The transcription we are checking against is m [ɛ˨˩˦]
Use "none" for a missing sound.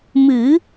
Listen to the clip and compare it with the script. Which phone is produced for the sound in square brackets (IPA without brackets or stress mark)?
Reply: ɨ˨˩˦